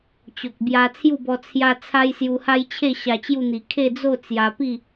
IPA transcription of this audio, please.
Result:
t͡ɕ o˨ k̚ b j a˧ t͡sʰ j u˥˧ b ɔ˧ t͡sʰ j a˦ t͡sʰ a˦ j s j u˧ h a˦ j t͡ɕʰ e˥˧ ɕ a˧ t͡ɕ j u˥˧ n̪ i˨˩ kʰ e˥˧ d͡z o˥˧ t͡s j a˧ p i˥˧

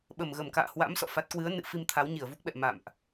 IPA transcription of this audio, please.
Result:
ɓ ə˨˩ m ɣ ə˨˩ m k a̰ː˧˨ h w a̰˧˥ m s ɔ̰˧˨ f a˦˥ t̚ k w ɨ˨˦ ə̯ n ɨ̰˧˨ f i˧ m t̪ʰ a˨˦ w ɲ i˧˩ ə̯ v u˦˥ k̚ ɓ ɛ̰˧˨ m a̰˧˨ m ʔ

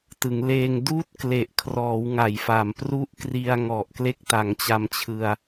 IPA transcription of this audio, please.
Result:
t ɯ˩˦ ŋ l eː˧ ŋ d uː˥˩ t̚ k l e˨˩ ʔ kʰ r ɔː˩˦ w ŋ a˨˩ j f a˨˩ m p r u˦˥ ʔ k r i˧ a̯ ŋ ɔ˨˩ ʔ k l e˦˥ k̚ t a˩˦ ŋ t͡ɕ a˧ m t͡ɕʰ ɯ˧ a̯

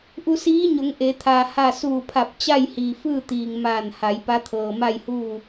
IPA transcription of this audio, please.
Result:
ʔ u˧ s iː˧˥ ɲ o˩˧ ŋ ʔ e˩˧ t̪ʰ aː˩ h a˧˩ s uː˧˩ pʰ a˧˩ p̚ t͡ɕ a˥˨ j h iː˩ f ɯː˥˨ t̪ iː˩ ŋ m aː˧˩ n h a˩˧ j p a˧˥ t̪ʰ ɤː˩ m a˥˨ j h uː˥˨

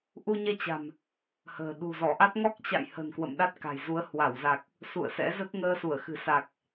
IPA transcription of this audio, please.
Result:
ʔ u˧ ɲ ɛ˧ t͡ɕ a̤˨˩ m | h ə̤ː˨˩ ɗ ṳ˨˩ z ɔ˧˩ ʔ a˦˥ t̚ ŋ ɔ˦˥ k̚ t͡ɕ a̰˧˨ j h ə̤˨˩ n k w ə̰˧˨ m ɗ a˦˥ t̚ k a̤˨˩ j z u˨˦ ə̯ h w a˧˩ w z a˨˩ k̚ | s ṵ˧˨ ə̯ s ɛ̰˧˥ z ə˦˥ t̚ ŋ əː˧ s u˧˩ ə̯ x ɨ̤˨˩ s a˨˩ k̚

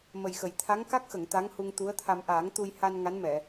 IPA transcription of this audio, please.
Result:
m ə˨˩ j x ə˨˩˨ j t̪ʰ a˧˥ ŋ k a˦˥ k̚ x ə˨˩˨ ŋ t̪ a˧˥ ŋ h u˧ ŋ t̪ u˧˥ ə̯ t̪ʰ a˧ m ʔ aː˨˩˦ ŋ t̪ u˧ j h a˧ n ŋ a˧˥ n m ɛ˨˩˨

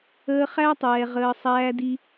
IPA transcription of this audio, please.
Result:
əː˧ χ æ˦ tˤ ɛː˨ ʁ əː˧ sˤ æː˧ d i˧

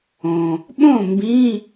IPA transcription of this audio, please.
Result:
õ˩ | ɓ õ˦˨ m b ĩ˧˥˧

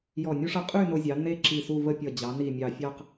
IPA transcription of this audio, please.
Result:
j ɔ˧˩ nʲ u˥ ʂ ʌ˧ qʼ y˥˧ n o˧ zʲ ɑ˩˧ n e˥ ǁ i˧˩ s u˥˧ v ə˥˧ pʲ ʌ˧˩ d͡ʑ ɑ˩˧ n i˧˩ mʲ ɑ˧˩ fʲ ɑ˥˧ q

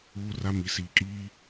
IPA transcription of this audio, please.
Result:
uː˦ r a˦ m i˨ s iː˨ kʼ iː˦

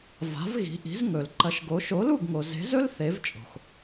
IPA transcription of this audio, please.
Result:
v a̤˨˥ v ɣ i̤˨˥ ʔ i̤˨˥ z ŋ ɵ˨ l ǃ ɐ˨˥ ʃ ɡ o˨˥ ʃ o˨˥ l u˥˨ ɡ ŋ o˨ z e̤˨˥ z ɵ˥ l θ e˨˥ v t͡ʃʼ o̤˨ x

